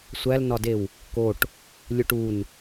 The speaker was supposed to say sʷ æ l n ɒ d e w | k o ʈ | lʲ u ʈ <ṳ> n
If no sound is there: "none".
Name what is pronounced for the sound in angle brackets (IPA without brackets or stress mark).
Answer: u